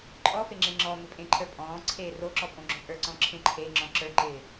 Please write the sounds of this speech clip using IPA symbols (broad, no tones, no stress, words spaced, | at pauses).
ǃʼɔfe ŋ͡ǁẽŋ͡ǁɔmɪ pʼẽǃʰə˞pʼɔ̃ːǀʰeː roǁɔ pʼõɡ͡ǁõpʼə˞ǀɔ̃ ǁʰẽǃʰeŋ͡ǁɔ̃ ǁə˞ǃɪː